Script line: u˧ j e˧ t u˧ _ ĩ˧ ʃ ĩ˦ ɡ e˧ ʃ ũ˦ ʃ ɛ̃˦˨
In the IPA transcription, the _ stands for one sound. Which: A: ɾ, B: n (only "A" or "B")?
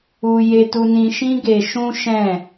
B